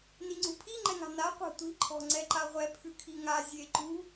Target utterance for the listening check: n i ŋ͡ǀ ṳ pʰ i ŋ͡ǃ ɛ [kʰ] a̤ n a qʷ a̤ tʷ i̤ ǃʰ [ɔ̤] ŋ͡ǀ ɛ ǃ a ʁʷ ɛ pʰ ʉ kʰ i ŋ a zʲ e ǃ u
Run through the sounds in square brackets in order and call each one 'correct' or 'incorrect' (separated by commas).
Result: incorrect, correct